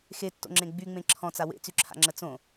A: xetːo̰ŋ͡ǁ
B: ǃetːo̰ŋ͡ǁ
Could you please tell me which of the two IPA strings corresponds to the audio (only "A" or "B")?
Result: A